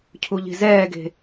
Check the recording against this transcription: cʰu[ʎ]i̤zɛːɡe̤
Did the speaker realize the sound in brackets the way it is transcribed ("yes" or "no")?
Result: yes